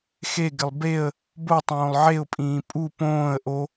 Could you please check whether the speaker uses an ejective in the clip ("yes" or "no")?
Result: yes